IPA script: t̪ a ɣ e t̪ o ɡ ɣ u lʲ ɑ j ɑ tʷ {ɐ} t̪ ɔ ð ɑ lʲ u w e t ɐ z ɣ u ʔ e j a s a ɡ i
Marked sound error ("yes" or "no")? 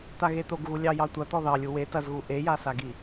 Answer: no